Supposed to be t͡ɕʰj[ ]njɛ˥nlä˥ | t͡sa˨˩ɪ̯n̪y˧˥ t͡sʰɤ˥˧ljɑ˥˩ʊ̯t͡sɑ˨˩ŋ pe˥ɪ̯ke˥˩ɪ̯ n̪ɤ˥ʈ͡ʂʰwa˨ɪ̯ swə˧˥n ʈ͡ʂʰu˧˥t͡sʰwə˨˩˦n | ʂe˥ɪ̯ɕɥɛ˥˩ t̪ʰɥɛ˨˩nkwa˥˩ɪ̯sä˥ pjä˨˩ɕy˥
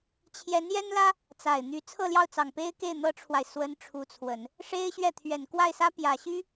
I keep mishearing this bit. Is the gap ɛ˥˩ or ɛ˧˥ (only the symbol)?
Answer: ɛ˧˥